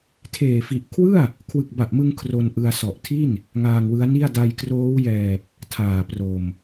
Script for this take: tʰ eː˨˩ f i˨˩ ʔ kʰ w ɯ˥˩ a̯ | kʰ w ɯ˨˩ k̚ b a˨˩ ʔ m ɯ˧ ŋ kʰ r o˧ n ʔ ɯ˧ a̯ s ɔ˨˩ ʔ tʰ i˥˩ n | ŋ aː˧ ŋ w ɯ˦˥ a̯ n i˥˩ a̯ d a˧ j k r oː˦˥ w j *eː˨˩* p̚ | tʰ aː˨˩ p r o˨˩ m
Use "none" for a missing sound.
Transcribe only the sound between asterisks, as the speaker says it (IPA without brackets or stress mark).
ɛː˨˩